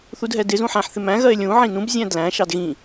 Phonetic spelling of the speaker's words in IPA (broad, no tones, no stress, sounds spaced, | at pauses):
θ u d ɦ ɛ d ɪ z ũ ħ æ̃ ħ θ ɪ m æ̃ ɣ ɜ e̯ lʲ ũ ʕ ĩ n ũ b zʲ æ̃ d l æ̃ ʃ ɑ d ɣ ĩ